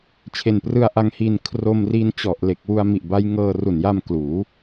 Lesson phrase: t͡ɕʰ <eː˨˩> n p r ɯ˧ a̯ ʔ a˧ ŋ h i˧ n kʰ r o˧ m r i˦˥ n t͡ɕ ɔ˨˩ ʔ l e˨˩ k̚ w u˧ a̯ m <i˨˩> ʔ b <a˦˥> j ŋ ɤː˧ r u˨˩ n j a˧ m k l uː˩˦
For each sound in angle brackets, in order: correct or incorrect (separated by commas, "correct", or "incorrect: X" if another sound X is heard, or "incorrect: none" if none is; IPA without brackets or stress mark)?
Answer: incorrect: e˨˩, correct, correct